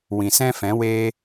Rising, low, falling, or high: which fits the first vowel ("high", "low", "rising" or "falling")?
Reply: low